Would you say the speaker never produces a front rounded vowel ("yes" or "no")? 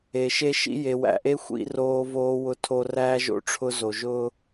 yes